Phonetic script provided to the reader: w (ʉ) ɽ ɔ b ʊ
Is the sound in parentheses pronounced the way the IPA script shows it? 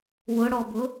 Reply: no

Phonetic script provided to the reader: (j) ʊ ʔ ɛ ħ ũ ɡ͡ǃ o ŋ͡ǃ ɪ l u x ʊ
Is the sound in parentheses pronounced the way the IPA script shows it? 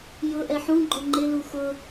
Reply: yes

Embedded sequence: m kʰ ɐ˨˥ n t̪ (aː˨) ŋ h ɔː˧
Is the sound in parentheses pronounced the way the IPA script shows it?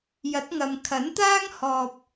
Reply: no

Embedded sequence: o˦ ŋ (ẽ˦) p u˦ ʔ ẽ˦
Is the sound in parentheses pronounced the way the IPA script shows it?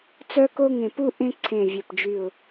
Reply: no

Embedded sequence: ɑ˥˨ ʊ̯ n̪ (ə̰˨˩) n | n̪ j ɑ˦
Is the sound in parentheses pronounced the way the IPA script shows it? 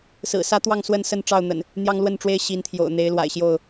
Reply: yes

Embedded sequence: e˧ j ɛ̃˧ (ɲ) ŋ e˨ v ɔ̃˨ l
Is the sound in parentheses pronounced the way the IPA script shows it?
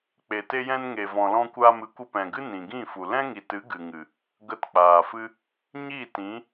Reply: no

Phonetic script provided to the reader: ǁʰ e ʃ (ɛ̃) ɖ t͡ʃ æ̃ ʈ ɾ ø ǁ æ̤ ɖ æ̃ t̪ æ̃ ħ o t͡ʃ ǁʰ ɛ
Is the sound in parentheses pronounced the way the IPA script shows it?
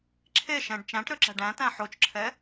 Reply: yes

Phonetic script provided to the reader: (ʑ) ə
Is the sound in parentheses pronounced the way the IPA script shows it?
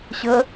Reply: no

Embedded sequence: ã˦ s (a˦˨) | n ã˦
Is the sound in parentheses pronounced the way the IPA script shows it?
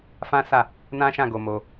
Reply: yes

